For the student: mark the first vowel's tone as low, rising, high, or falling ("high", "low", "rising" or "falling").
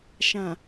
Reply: low